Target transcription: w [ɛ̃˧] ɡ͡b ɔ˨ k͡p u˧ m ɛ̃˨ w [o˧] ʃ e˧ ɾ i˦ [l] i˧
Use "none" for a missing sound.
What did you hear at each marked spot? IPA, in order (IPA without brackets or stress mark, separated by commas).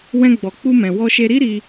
ɛ̃˧, ɔ˧, ɾ